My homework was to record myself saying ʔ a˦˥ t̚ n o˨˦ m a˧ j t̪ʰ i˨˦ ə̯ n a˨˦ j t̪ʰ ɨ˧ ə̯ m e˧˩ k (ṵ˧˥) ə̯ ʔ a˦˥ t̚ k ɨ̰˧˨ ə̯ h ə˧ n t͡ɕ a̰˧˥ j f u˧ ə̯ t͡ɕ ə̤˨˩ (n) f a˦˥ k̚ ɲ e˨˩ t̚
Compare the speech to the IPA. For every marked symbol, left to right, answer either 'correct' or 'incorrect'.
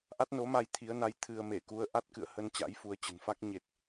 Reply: incorrect: u˨˦, correct

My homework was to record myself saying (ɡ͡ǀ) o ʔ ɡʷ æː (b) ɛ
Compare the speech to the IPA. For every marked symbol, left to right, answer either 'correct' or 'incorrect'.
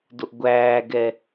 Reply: incorrect: d, incorrect: ɡ

